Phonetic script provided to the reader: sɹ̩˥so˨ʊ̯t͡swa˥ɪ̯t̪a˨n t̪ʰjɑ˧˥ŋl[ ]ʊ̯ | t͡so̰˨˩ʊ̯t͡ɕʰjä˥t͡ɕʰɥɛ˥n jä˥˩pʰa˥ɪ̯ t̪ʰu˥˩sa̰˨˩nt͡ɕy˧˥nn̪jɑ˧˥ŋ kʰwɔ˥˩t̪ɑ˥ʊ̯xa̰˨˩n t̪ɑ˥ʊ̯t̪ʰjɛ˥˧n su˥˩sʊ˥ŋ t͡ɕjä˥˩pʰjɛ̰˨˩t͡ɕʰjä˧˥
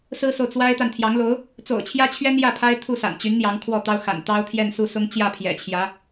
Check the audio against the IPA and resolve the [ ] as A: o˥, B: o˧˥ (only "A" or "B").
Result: B